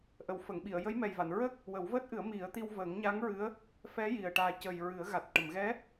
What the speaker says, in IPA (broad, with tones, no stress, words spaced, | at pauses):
ʔə˨˩˨wfə˨˩˨ŋɓi˨˩˨ə̯ jə˧˥jmɛ˨˩jva˨˩˨nɹəː˦˥k̚ | wə˨˩˦wvəː˦˥t̚ʔɨ˨˩˦ə̯ mi˨˩˦ə̯t̪i˧w vəː˨˩˦ŋɲa˧˥ŋ ɹɨ˧˥ə̯ | fɛ˧˥ ji˨˩ə̯ʈaː˧ cə˨˩j ɹɨ˨˩˦ə̯ɣa˨˩t̚ ʈə˨˩˨mɣɛ˧˥